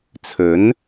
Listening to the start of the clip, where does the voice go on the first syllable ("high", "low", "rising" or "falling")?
rising